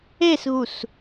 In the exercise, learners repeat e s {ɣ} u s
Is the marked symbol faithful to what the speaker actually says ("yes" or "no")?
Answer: yes